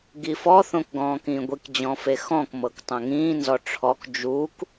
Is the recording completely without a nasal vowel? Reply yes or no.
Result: no